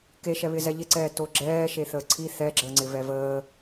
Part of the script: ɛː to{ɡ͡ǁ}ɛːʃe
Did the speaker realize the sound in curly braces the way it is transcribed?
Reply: yes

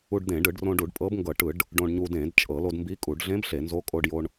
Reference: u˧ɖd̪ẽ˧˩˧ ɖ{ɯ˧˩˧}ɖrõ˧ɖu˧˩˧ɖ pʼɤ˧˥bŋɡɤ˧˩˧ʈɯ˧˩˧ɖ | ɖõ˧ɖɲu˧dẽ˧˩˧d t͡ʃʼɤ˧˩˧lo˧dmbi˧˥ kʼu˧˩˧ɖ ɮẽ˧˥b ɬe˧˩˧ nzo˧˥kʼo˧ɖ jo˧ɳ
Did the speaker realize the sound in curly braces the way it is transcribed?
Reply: yes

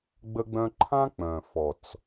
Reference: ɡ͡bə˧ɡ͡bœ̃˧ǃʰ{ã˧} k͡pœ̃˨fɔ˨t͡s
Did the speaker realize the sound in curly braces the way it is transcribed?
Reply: no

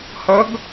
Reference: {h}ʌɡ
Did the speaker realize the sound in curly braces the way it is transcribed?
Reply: yes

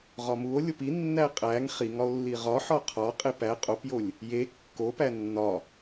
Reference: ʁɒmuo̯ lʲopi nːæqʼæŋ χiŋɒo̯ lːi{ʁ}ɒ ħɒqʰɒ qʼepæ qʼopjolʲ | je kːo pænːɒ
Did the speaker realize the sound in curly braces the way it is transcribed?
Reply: yes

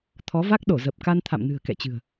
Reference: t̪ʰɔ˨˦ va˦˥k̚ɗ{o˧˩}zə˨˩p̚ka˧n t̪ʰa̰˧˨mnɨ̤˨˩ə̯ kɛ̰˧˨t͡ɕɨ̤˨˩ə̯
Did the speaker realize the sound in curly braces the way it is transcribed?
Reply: yes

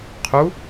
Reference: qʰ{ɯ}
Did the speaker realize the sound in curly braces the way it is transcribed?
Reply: no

